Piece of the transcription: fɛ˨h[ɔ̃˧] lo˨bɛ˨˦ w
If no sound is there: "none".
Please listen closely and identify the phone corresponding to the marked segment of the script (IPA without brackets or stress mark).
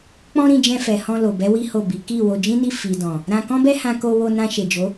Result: ɔ̃˧